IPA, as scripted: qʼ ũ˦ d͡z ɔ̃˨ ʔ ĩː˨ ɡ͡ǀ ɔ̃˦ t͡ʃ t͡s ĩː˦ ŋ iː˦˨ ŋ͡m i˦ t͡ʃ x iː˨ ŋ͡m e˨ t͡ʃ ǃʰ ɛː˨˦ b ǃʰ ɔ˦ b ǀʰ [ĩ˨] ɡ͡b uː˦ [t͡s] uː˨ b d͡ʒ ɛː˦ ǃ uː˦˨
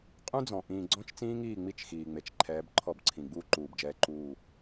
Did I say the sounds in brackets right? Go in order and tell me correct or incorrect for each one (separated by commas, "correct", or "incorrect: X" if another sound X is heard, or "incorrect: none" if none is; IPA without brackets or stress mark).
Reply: correct, incorrect: ǃ